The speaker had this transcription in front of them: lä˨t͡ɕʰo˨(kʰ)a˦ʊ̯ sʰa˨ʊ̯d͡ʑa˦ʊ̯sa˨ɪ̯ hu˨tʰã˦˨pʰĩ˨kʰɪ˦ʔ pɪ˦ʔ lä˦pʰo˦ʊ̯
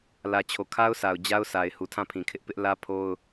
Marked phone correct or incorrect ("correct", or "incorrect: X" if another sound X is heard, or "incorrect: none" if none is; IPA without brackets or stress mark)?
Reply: correct